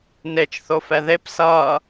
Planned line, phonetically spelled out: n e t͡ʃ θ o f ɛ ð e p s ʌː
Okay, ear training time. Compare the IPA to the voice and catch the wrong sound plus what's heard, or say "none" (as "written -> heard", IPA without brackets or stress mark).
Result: none